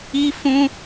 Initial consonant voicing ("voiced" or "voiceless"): voiceless